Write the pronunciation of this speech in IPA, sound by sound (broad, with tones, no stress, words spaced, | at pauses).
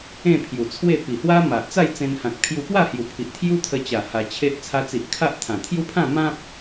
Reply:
ẽ˥˧pʰju˨˩t͡sʰwe˥˧ pi˨˩ hwa˦ma˨ʔt͡sa˥˧j t͡sẽ˧nhã˨k̚ pʰju˧pwa˥˧hju˨˩pʰi˨ʔ t̪ʰju˦t̪ʰə˧t͡ɕa˨˩ ha˧t͡ɕʰe˦ʔ t͡sʰa˧t͡si˨ʔ kʰa˦ʔ t̪ʰã˨˩ t̪ʰju˦pʰã˥˧ mã˦p̚